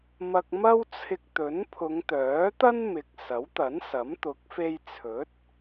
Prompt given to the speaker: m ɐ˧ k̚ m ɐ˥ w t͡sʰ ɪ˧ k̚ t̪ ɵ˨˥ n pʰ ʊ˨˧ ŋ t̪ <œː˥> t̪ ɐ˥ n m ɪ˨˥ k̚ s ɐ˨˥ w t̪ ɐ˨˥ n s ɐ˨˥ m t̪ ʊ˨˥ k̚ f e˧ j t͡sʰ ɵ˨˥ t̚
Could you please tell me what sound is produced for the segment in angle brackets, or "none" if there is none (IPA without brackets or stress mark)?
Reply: œː˨˥